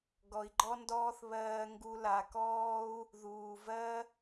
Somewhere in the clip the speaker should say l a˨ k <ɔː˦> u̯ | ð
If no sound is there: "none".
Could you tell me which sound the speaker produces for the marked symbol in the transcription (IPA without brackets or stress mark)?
ɔː˦